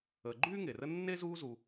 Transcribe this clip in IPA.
əː˨ ɡ͡ǃ yː˥ ŋ e˩ r ə˦ nː e˥ z uː˦ z u˨

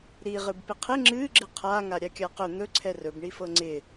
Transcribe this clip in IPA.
ɾ i ʁ ɨ b p ɪ qʰ ɪ ŋ͡ǁ ɨ ɡ͡ǁ ɪ qʰ a ŋ a ɾʲ a kʲ a q ɵ n̪ ɵ ǀʰ ɛ r ɵ b ɳ i f ɤ ŋ͡ǀ ɪ

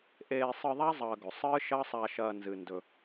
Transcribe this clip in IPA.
ʔ eː˧ sˤ ɨ˧ ðˤ a˦ zˤ ɐː˧ ɡ ɵ˨ sˤ ɨː˦ ʃ ɐː˦ sˤ a˧ ʃ ɐː˧ n z ɨ˧ n d ɵ˧

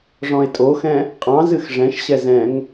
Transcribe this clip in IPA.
ʐ ɔ̃ e̯ tʼ o x ɛ̃ | qʼ ɑ̃ z ɨ x ʐ ɛ̃ ʃ ɕ ɛ z ɛ̃ ŋ

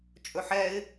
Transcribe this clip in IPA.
t͡ʃʼ ɵ ħ ɛ ɪ̯

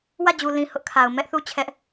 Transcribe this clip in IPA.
w ä˦˨ d͡ʑ u˨ l ĩ˨ h ʊ˦ ʔ kʰ a˨ ʊ̯ m ɛ˦ ʔ θ u˦ t͡ɕʰ ɛ˦ ʔ

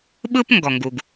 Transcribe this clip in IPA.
ɓ ɯ˥ p ŋ ɡ ɔ˩ ŋ ɡ u˩ ɡ

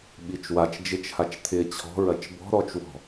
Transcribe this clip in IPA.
ɓ i t͡ʃ w a t͡ʃ d͡ʒ ɪ t͡ʃ h a t͡ʃ t̪ʰ ɪ t͡ɕʰ ɔ̤ ɹ ɐ t͡ʃ b ɔ̤ ɾ ɔ t͡ʃ w ɔ̤

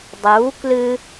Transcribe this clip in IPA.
dˤ u k l ɨ

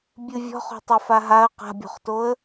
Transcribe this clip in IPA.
bʲ ɨ vʲ ɔ̤ χ o̤ tˤ ɘ f a ɦ a ə̯ q a̤ bʲ o̤ χ t o ə̯

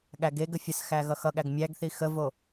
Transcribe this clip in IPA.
ɠ æ ɡ e ɡ ə fʲ ə s x æ ɣ ʌ x ʌ ɠ æ ɡ mʲ æ ɡ θ i x ə v o

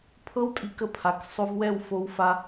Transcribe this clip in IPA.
pʰ ɤ˦ w tʼ i˧ k ə˧ pʰ a˨ k sˤ o˧ v w ɛ˦˨ w f o˧ w f a˧

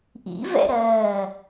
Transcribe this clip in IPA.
ʔ ḭ v ɛ̰ ɾ ɜː

